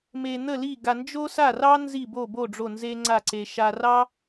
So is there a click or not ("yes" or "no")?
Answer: yes